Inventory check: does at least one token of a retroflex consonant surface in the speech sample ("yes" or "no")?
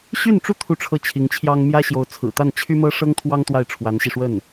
yes